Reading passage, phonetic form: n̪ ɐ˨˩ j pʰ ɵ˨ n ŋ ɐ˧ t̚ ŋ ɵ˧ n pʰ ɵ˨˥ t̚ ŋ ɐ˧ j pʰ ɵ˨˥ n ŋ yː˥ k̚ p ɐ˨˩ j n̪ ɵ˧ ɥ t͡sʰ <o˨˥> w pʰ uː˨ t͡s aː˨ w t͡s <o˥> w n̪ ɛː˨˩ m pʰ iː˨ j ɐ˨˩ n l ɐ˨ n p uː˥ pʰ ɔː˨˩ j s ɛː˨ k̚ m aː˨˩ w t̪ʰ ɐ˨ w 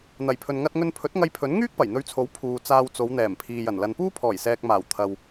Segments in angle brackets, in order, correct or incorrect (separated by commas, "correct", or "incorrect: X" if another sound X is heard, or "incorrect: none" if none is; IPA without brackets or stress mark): correct, incorrect: o˨˧